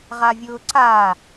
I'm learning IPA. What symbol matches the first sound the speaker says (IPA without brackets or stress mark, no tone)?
ʁ